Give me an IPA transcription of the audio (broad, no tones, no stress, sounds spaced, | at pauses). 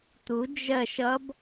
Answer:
t̪ u d͡ʒ ɜ ʃ ʌ b